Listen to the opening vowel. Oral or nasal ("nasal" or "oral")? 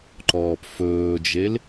oral